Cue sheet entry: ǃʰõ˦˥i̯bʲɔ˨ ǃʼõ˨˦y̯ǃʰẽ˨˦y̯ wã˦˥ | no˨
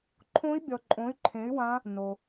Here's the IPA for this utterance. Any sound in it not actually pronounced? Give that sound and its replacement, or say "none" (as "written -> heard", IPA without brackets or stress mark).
none